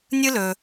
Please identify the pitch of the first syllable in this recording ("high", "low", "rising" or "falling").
high